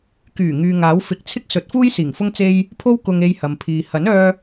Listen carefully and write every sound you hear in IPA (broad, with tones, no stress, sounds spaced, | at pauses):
k yː˨˩ ŋ yː˨ ŋ aː˨˥ w f ɪ˨˥ k̚ t͡sʰ ɪ˥ k̚ s ɵ˨˥ t̚ f uː˥ j s iː˨˩ ŋ f ʊ˥ ŋ t͡s e˥ j | pʰ o˥ w k ʊ˧ ŋ e˧ j h ɐ˨ m pʰ iː˨ h ɐ˨˥ n œː˧